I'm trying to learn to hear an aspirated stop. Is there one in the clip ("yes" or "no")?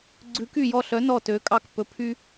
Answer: yes